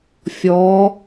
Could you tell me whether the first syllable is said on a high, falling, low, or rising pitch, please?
rising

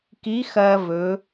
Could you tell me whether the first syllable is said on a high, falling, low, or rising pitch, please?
rising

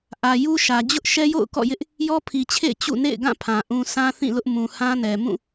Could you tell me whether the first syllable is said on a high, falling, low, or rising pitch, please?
low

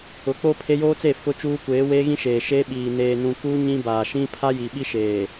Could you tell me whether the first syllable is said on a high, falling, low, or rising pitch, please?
rising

